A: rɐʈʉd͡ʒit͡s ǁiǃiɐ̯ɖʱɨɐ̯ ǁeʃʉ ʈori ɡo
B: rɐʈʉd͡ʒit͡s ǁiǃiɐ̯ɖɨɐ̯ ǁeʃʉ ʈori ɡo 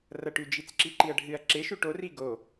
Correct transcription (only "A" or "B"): A